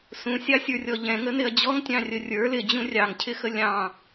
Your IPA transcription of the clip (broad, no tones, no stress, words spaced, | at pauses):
sũsʲɑsʲə˞rʲɔ ʎɛ̃ŋənɪɐ̯ d͡ʑɔŋtʲɑ̃rʲə rʲə˞ lɪd͡ʑũ rʲɑŋcʰɪxə lʲɑ̃